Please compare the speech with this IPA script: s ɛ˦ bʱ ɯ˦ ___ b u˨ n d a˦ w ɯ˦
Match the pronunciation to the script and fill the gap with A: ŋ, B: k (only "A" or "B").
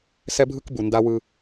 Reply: B